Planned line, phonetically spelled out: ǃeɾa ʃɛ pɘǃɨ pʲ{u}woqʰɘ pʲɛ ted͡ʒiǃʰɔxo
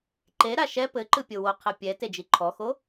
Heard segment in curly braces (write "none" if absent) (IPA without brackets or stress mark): o